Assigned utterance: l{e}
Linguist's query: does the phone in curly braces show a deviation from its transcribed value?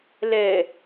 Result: yes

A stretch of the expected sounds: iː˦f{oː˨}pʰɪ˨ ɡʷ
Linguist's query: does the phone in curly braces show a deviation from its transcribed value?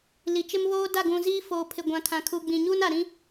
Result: no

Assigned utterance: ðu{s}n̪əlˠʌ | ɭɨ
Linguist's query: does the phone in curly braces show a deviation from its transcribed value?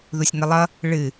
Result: yes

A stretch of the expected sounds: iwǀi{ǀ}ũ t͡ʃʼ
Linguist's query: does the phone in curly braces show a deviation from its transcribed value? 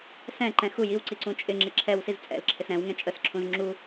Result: no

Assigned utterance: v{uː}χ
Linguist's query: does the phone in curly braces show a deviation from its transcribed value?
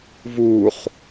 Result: no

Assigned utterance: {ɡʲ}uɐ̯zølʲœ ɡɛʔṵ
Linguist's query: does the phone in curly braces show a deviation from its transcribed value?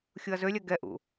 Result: yes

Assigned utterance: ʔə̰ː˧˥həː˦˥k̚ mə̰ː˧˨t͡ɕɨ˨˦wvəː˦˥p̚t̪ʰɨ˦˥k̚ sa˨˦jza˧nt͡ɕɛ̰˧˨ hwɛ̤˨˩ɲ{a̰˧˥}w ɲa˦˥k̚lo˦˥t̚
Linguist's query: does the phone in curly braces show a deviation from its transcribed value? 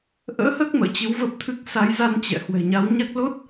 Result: yes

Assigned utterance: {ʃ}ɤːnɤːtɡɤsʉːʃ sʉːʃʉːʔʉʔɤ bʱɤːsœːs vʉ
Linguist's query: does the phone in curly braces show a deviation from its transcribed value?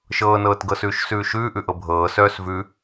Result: no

